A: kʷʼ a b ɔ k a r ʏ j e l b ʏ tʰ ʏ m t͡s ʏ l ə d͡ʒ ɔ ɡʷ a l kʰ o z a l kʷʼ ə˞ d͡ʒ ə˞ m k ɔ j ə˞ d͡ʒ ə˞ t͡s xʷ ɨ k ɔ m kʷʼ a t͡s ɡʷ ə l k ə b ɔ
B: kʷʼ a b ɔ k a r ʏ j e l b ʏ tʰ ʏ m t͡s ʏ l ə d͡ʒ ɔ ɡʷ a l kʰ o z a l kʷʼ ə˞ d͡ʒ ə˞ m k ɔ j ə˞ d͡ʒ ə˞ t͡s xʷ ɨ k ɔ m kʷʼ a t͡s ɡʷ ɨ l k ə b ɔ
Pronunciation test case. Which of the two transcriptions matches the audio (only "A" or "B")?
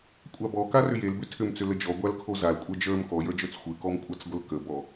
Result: A